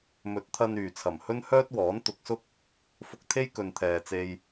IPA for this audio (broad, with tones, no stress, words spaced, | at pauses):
mɵ˨˥t̚t̪ʰɐ˧nyː˨˩ t͡sʰɐ˨˩mhɵ˥nhœː˥t̚wɔː˨˥n t̪ʊ˨˥k̚sʊ˥k̚ | fʊ˧k̚t̪ʰe˥j kɵ˨nt̪ʰɛː˨t͡se˧j